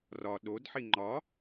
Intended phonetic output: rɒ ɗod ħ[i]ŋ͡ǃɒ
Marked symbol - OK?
yes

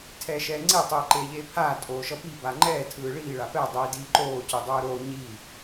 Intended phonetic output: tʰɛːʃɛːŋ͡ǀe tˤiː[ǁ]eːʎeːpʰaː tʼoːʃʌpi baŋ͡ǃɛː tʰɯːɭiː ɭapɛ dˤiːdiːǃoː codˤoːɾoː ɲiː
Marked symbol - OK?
no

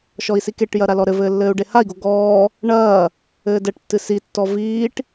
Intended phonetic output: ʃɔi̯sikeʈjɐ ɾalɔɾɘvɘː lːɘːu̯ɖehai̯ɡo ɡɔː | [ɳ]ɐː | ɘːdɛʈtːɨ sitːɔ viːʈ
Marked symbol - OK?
yes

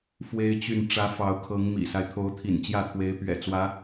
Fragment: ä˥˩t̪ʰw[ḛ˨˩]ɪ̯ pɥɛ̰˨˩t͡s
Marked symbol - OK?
no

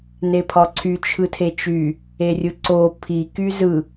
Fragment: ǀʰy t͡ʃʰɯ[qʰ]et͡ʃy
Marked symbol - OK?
no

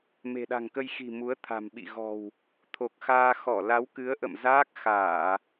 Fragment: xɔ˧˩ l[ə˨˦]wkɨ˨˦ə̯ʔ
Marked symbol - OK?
no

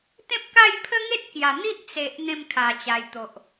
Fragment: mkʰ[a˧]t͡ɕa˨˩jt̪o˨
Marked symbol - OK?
no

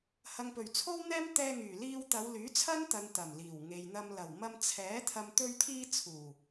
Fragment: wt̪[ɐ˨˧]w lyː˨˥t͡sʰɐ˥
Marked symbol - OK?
yes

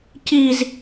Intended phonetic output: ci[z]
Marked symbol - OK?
yes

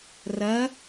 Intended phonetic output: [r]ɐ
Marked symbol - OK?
yes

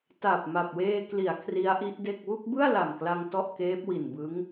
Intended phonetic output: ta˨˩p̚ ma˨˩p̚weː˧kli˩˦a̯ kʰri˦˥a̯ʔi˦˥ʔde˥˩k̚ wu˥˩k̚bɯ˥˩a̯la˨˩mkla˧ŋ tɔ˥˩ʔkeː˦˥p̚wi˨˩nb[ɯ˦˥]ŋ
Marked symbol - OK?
yes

